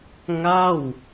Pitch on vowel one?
falling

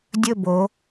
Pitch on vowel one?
falling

